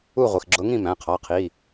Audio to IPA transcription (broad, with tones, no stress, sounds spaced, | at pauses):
u˥˨ ʁʷ i˩˧˩ x ɡ͡ǁ ʊ˧˥ ŋ ĩ˥˨ m æ̃˩˧˩ qʰ ɑ˩˧˩ qʰ i˩˧˩